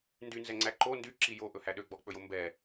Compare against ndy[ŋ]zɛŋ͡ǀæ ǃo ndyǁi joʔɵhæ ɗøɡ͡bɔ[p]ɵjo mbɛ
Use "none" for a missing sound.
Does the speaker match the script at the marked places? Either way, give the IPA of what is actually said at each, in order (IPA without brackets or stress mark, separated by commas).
n, k͡p